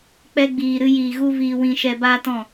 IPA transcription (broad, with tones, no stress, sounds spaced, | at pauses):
k͡p ɛ˧ ɡ͡b iː˨ ɾ ɨ˧ j iː˨ ɣ u˦ v iː˧ w ĩ˧ ʃ ɛ˧ b aː˦ t ɔ̃˦˨